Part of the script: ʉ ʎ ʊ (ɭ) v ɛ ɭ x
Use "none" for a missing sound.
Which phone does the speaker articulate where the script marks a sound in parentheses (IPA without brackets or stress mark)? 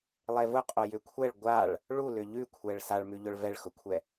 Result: ɭ